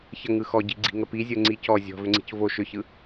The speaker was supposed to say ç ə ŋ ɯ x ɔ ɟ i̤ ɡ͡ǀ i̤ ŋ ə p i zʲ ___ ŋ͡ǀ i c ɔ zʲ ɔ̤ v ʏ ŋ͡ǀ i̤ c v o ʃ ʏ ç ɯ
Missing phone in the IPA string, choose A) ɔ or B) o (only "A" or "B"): B